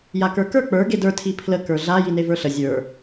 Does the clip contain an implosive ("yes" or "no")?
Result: no